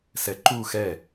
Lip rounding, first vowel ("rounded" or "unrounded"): unrounded